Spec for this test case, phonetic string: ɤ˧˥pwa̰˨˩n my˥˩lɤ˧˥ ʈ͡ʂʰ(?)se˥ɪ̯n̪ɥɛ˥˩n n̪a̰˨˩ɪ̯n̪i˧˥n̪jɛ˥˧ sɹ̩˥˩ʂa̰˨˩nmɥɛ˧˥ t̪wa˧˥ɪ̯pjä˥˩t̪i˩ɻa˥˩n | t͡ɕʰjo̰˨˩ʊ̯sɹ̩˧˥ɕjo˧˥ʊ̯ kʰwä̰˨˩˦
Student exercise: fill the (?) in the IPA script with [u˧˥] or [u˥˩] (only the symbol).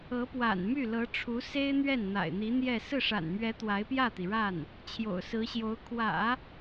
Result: u˧˥